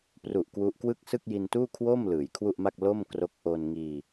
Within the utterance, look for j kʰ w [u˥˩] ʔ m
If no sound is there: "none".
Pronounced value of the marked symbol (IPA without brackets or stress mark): u˥˩